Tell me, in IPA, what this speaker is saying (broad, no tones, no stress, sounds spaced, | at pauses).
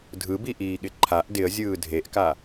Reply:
dʱ ɯ b i ʔ iː ɠ ɪ ǃʰ a ʔ d ɪ ə̯ zʲ ɯː dʱ e ʔ k a